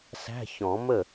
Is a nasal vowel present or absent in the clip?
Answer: present